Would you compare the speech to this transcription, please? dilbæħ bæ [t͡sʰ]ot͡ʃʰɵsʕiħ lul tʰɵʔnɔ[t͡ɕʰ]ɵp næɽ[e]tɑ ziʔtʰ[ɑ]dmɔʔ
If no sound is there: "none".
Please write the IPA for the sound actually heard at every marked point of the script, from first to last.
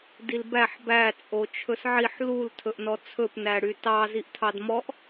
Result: t͡sʼ, t͡sʰ, y, ɑ

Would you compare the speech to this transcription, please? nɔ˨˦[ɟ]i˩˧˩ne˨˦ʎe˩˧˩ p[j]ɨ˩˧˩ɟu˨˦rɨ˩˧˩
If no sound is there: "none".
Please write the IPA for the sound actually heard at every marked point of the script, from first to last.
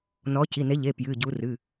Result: c, j

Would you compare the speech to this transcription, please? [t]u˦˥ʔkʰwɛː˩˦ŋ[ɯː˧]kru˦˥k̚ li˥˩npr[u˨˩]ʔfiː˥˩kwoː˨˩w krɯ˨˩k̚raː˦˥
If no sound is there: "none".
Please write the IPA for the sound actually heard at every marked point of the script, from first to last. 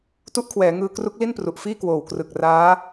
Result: t, ɯː˧, u˨˩

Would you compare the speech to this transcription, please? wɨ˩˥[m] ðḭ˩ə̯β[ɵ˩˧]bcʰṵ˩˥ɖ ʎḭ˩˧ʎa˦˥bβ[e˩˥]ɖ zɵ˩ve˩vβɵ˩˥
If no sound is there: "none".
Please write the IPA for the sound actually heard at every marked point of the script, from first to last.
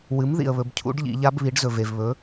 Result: m, ɵ˩˧, i˩˥

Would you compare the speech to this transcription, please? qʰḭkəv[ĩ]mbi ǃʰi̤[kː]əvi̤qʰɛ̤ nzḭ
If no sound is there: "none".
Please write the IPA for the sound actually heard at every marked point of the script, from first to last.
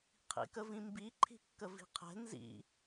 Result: ĩ, kː

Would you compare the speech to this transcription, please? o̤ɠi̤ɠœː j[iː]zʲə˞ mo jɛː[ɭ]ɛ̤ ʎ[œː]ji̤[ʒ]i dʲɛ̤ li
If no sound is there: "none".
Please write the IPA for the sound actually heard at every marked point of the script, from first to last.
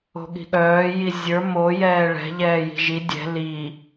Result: i, ɭ, ɛː, ʒ

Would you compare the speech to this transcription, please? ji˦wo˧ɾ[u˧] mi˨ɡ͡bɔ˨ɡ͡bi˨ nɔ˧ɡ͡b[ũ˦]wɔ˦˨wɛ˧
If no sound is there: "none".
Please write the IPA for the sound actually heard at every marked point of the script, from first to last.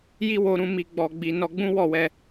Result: ũ˧, ũ˦

